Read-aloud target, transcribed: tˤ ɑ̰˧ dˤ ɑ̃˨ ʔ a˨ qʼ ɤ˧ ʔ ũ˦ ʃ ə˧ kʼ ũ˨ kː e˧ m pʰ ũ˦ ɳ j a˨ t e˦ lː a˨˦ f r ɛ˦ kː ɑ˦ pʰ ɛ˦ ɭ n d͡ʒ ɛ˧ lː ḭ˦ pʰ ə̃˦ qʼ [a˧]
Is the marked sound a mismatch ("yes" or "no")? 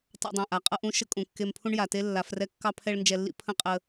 yes